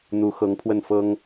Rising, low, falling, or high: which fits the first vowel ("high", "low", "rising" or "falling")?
rising